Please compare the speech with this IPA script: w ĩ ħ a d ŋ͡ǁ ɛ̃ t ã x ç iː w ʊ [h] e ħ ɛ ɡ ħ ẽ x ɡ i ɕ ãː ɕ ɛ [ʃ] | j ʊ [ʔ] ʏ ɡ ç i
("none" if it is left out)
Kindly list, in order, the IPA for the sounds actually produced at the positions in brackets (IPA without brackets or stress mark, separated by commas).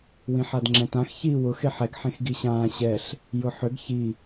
x, ɬ, ħ